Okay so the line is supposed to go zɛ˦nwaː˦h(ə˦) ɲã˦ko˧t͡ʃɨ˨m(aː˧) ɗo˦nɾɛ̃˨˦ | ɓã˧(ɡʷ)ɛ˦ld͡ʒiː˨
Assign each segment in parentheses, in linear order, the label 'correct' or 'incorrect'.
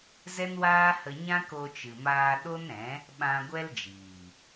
incorrect: ə˧, correct, correct

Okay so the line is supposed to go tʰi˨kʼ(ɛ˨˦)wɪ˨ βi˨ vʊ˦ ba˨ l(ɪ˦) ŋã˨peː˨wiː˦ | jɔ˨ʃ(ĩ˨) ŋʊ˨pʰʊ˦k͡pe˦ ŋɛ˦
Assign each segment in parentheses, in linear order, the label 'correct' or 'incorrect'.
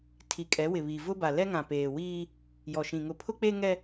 correct, incorrect: ɛ˦, correct

